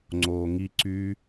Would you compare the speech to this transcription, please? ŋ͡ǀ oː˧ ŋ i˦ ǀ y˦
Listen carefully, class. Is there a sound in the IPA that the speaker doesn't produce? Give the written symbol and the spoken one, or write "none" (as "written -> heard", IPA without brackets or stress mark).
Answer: none